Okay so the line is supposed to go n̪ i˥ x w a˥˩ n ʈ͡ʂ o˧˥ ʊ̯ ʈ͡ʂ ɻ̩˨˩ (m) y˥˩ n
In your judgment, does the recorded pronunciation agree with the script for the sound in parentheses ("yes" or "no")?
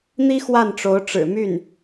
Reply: yes